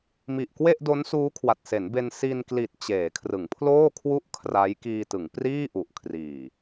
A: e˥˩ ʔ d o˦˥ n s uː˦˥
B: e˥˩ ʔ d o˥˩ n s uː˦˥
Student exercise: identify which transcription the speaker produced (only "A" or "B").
A